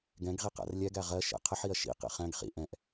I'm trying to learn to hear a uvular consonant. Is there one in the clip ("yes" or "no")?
yes